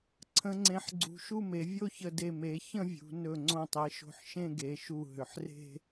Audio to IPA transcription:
ǀʰ ə̃˩˧ ŋ͡ǀ ẽ˩˧ ħ ɡ͡ǀ ṳ˩˧ ʃ u˥˧ m e˩˧ vʲ o˥˧ ç ə˧˩ d e˧˩ m e˩˧ ç ə̃˥˧ vʲ ṳ˩˧ n ɵ˧˩ ŋ͡ǀ õ˧˩ tˤ e˩˧ ʃ o̤˧˩ ħ ʃ ẽ˥˧ ɡ e˩˧ ʃ u˧˩ ɦ ʏ˩˧ ħ r e̤˥˧

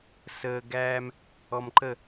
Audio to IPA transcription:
s əː˨ ɡ æː˦ m | ɔ˨ m ǃ ə˦˨

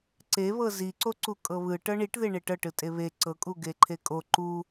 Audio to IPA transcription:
ǀ e β ɤ z i ǀ o ǀ u kʼ ɤ β ɯ ʈ ɤ ɳ i ʈ ð e ɳ e ʈ ɤ ʈ ɯ tʼ e β e ǀ ɤ kʼ u ɡ e ǃʰ e kʼ o ǃ u

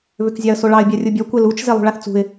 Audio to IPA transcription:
β ʏ k zʲ ɑ ə̯ s o ɭ ɑ ɪ̯ bʲ a rʲ u bʲ ɔ kʷ e l u t͡ʃ z e lˠ ṳ ɭ a θ t͡s ṳ ɪ̯

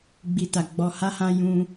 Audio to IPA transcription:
ɡ͡b i˨ t a˨ ɡ͡b ɔ˨ h a˧ h ã˧ j ũ˧

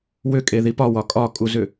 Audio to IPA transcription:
w ʏ kʼ e ð i p ɒ w ɒ kʼ ɒ kʼ u z ʏ

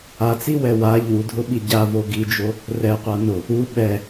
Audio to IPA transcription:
a t͡s i w ɛ w a ʎ u dʱ ʊ ɓ i ɟ a v o ɡ i d͡ʒ o | r ɛ qʷ a n ʊ | u ɓ ɛ

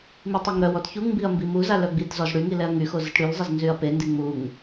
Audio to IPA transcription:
m i tˤ e ŋ ɾ œ w ɔ t ç u ŋ m b i ɐ̯ m b i m u z a l œ ɡ͡b i t z ɔ z ɽ y ŋ i l ɛ ɐ̯ ŋ y x o z ə t ɽ y l zˤ ə z n z y ɐ̯ p e n d i ŋ͡m u ŋ

